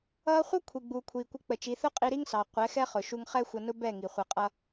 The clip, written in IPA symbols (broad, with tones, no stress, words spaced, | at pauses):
ʌː˧χʷʌ˦ kʷʰi˨ɡ͡buː˨kʷʰiː˨ kʷɪ˧k͡pə˨t͡ʃi˨˦ θʊ˦qʼi˧ɾi˦ŋsɑ˨ qʷɛ˨˦xɛ˦χʊ˨ ʃu˧ŋχɛ˦xʷʌ˧nʊ˦ bɛ˦˨ŋi˨χʷʌ˧qʼʌ˦